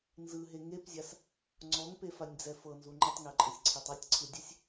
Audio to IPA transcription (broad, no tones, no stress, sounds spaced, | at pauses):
n z ɯ ɦ e ŋ e p zʲ a s | ŋ͡ǀ ɔ ŋ p e f a nʲ d͡z ɛ f ɤ n z u ŋ͡ǃ ɯ tˤ ŋ ɛ ǃʼ ɯ sʲ ǀʰ ɛ tˤ ɛ tʲ ǀʰ ɯ dʲ ɛ sʲ